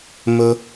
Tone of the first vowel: low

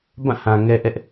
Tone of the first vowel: falling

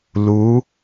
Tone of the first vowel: rising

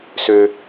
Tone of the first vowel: low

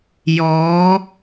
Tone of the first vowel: rising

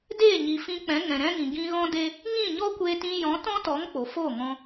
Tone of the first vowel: falling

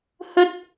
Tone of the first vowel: high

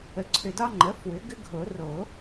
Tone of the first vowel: rising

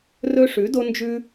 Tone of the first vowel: high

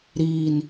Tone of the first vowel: low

